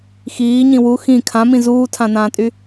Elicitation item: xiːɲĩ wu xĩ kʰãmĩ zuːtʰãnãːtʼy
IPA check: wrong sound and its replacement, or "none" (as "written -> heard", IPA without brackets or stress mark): none